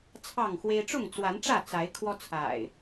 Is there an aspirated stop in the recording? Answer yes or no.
yes